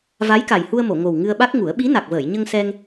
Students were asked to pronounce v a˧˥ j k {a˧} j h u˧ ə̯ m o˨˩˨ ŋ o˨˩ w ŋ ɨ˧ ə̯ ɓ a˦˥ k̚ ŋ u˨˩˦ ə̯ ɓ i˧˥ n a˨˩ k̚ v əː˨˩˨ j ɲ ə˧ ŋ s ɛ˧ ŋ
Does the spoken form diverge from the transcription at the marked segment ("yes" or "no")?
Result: yes